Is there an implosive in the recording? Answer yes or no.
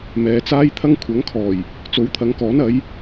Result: no